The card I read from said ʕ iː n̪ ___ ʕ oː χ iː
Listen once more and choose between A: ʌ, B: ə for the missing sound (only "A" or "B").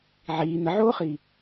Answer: B